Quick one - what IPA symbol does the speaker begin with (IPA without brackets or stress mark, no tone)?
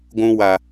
ɡʷ